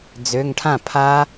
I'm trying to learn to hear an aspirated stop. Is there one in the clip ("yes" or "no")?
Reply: yes